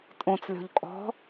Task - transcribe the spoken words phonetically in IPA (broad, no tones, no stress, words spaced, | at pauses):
tʼõt͡slʲɔ̤ʎ kʼɔ̤